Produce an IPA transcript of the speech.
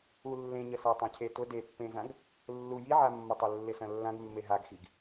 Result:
ulːẽɲəsa tˤãcʰetʊ depːẽzãɡ | lːu jiʕamːʊtˤɐ lːɪsɐ̃lːãɡ mːeɦaɡxiɡ

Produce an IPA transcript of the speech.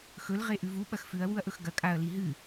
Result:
xɵl ʁeʔʉvu ɓɐxfʉɐ̯ wuɐ̯ʔɵxɡɐ kʼaɐ̯ liɦɨ

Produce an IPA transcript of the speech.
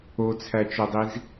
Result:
ot͡sʰæt͡ʃodˤiz

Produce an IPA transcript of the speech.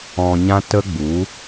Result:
ɔ̃˧ɲã˦ tə˦ɡ͡bu˨˦

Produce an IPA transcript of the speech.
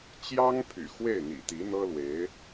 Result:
t͡ɕjɑ˥ŋ pʰy̰˨˩xwe˥˩ɪ̯n̪ḭ˨˩ t̪i˧˥n̪ɤ˥lwe˧˥ɪ̯

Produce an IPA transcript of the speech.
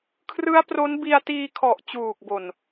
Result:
kʰrɯ˦˥a̯pro˦˥n bi˧a̯tiː˧kʰɔ˨˩ʔ t͡ɕuː˨˩k̚bo˨˩n

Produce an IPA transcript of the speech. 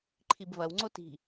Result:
ǃʰibvɐw ŋ͡ǀoti̤

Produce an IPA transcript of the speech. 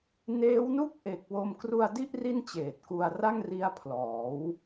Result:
neː˦˥wnu˥˩k̚ʔe˨˩k̚ wo˧mkru˧a̯di˥˩ʔ ri˥˩nt͡ɕeː˨˩t̚ku˧a̯ ra˥˩ŋri˦˥a̯pʰlɔː˩˦w

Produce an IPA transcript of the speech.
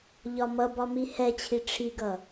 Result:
ʎɒmʌbɒ mihɛt͡ɕʰi ʈ͡ʂʰiɡʌ

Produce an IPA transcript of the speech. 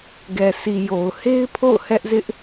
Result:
ɡɛ˨sʰi˨ jo˨ʊ̯he˦ɪ̯pʰo̰˦˨ʊ̯ hɛ˦ʔzɪ˦ʔ

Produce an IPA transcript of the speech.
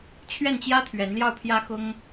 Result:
t͡ɕʰɥɛ˥˩nt͡ɕjä˥t̪ʰɥɛ˧˥nljɑ˥˩ʊ̯ pʰjä˥xʊ˥ŋ

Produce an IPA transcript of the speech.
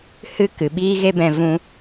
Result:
hɨ˦ kɨ˨ɓiː˦ɣe˦bɛ̃˧ vũ˧

